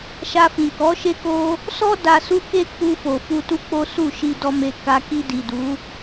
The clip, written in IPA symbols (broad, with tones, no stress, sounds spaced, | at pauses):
ʃ a˧ f ĩ˨ k ɔ˨˦ ʃ e˦ k o˦ | s ɔ˦ d a˧ s u˦ k e˦ k͡p u˧ f o˨ f u˧ t u˦ k͡p o˦ s u˦˨ ʃ i˧ d ɔ˧ m e˧ k a˧ k i˧ d i˨ d u˨˦